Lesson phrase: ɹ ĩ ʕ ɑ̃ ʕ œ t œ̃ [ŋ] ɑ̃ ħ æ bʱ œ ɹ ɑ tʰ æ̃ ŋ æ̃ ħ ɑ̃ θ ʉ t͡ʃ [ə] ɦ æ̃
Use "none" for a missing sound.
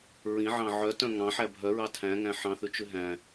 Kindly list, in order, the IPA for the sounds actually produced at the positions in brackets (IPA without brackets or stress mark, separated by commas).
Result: ŋ, ʉ